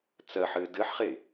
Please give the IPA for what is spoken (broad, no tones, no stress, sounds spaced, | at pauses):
t͡s ɜ ħ ɘː d ɘ ħ χ e